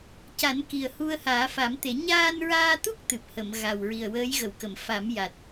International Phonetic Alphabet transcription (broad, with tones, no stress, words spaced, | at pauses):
ca˨˩˦nki˨˩ə̯hu˧ə̯ haː˨˩˦fa˨˩˦mt̪e˨˩˦ ɲaː˧nɹaː˧t̪u˦˥k̚ t̪ɨ˨˩p̚ hə˨˩˨m ɣa˨˩w ɹi˨˩ə̯wəː˧˥jɣə˨˩˨wkə˨˩˨m fa˨˩˦mja˨˩t̚